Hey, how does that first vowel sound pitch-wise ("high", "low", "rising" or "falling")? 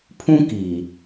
high